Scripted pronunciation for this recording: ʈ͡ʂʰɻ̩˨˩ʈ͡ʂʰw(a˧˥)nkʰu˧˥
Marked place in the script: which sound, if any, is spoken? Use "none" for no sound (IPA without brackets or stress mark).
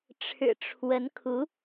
ə˧˥